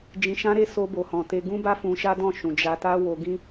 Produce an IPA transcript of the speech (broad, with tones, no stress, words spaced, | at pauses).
d͡ʒĩ˧ʃã˦ɾe˦ so˧bo˨hɔ̃˨te˧ ɡũ˦ba˦fũ˧ ʃa˦dɔ̃˦˨ʃũ˨ d͡ʒa˧ta˦ wo˧ɡĩ˦